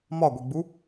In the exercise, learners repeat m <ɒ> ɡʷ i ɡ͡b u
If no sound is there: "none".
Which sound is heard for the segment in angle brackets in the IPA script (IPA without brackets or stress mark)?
ɒ